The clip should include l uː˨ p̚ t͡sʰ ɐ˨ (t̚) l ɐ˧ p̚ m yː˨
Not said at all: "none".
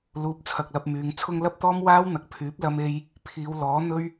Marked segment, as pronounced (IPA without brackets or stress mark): k̚